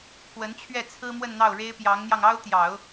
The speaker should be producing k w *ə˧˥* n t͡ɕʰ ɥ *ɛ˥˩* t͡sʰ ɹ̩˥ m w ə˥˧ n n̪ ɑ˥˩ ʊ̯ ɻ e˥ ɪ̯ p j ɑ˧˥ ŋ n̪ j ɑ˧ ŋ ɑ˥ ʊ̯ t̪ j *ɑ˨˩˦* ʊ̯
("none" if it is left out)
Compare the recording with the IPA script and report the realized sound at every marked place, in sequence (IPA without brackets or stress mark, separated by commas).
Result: ə˧˥, ɛ˥˩, ɑ˨˩˦